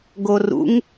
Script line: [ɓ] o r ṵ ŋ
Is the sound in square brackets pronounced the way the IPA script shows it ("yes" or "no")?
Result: no